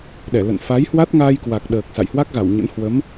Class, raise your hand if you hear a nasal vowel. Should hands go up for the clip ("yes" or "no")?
no